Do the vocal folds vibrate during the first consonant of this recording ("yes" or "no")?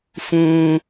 no